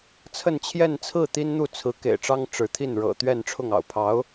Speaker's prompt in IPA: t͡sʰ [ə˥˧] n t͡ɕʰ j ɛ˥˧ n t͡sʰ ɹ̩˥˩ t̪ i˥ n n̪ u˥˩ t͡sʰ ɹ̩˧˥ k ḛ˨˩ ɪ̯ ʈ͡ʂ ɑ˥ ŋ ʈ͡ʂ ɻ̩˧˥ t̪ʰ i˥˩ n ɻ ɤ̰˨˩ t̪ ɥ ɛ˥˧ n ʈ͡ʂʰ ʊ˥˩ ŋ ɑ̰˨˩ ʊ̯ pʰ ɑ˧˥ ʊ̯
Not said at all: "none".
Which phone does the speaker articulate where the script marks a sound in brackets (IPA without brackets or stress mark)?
ə˥˧